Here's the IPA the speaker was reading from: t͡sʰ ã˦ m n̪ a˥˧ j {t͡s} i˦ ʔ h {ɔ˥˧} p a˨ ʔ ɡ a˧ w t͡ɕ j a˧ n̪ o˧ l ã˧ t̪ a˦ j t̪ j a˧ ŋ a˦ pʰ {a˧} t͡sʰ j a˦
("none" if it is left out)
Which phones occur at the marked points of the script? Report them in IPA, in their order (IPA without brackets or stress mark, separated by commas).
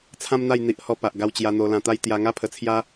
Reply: n̪, ɔ˥˧, ə˧